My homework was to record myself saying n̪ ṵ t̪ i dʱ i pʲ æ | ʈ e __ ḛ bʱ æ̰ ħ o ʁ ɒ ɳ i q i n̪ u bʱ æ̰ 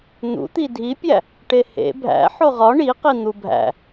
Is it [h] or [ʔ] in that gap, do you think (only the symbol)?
h